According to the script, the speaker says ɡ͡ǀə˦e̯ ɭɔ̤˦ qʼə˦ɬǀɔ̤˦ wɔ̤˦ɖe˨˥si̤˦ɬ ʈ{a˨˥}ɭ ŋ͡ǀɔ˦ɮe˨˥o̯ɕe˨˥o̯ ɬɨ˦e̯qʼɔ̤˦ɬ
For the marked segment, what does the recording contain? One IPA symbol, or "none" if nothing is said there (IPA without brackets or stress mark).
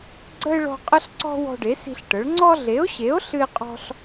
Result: ə˨˥